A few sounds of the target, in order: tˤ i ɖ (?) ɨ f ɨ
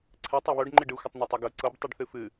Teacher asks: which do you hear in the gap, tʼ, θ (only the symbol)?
θ